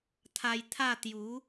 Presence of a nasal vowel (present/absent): absent